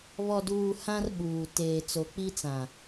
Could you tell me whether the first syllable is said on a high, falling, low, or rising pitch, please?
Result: low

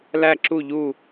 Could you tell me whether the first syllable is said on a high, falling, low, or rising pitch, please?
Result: falling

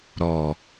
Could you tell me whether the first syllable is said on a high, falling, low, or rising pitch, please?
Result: low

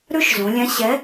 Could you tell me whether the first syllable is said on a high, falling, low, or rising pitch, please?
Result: high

